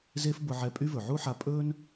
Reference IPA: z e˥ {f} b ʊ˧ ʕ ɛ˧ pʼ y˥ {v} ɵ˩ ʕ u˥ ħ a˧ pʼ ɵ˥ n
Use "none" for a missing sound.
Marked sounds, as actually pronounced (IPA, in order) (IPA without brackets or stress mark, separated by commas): f, v